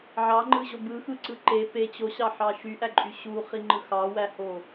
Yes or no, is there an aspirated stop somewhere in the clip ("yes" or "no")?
no